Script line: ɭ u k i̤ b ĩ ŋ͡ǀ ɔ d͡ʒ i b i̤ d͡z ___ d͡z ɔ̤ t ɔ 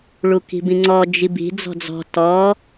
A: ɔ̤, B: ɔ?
A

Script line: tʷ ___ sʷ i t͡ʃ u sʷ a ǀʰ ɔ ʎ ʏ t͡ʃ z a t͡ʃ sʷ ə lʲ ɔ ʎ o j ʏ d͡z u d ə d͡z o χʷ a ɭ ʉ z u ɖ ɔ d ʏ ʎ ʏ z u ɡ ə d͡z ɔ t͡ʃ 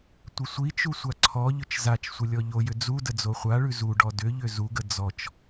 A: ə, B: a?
A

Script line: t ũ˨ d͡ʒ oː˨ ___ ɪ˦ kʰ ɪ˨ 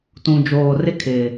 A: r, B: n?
A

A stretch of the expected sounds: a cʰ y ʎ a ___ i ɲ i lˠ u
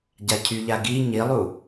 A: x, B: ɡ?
B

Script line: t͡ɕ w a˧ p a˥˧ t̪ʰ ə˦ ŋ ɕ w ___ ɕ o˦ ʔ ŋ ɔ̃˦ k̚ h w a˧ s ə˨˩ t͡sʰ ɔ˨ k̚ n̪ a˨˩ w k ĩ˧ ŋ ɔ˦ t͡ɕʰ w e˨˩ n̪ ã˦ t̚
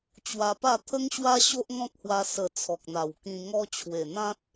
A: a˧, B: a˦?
B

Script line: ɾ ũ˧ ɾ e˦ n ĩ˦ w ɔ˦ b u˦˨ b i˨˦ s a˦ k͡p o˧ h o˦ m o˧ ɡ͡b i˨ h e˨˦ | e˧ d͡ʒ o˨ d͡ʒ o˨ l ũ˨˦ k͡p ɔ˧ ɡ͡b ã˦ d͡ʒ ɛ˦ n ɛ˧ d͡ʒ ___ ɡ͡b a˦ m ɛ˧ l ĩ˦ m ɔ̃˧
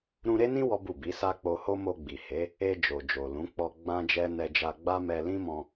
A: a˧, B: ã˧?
A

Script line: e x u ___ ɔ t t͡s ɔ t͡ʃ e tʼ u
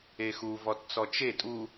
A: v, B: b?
A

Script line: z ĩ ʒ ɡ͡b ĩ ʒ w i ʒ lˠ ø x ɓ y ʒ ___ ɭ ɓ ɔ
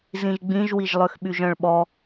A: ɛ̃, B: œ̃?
B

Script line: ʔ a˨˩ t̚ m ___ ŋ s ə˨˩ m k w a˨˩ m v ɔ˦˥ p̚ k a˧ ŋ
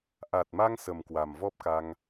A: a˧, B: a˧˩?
A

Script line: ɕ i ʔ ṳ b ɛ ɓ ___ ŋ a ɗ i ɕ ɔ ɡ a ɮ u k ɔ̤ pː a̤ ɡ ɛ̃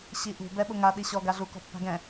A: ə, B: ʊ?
B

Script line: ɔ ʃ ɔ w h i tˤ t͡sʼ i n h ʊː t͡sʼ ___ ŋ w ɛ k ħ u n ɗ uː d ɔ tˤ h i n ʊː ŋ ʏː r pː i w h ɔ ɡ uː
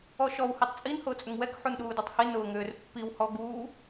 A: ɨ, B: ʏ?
B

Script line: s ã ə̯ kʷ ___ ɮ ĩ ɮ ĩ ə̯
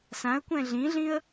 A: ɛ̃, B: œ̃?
A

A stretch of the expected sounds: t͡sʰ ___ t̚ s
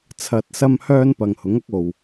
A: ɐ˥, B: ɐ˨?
B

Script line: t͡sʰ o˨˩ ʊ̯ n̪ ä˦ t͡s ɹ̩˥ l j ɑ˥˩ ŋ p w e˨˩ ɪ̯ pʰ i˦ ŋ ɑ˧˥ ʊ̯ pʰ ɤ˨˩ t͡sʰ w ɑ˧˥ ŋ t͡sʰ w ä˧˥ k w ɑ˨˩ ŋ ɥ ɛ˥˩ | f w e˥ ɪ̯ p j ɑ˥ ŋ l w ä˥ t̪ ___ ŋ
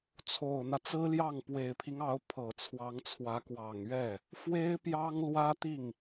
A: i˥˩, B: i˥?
A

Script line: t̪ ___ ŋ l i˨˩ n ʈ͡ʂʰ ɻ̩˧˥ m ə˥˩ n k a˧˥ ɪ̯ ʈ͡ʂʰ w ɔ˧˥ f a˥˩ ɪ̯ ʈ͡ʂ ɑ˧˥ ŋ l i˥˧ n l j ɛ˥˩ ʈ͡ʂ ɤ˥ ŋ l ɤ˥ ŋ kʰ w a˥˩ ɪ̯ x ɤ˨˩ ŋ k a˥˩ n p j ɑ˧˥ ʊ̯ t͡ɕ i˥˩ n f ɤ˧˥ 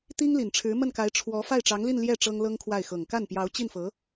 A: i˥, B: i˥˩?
A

